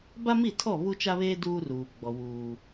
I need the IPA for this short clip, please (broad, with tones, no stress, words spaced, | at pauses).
ba˦mi˦˨tʰɔ˦˨ βu˦t͡ʃa˦βeː˦ duː˦ruː˨ɡ͡bɔ˨wuː˨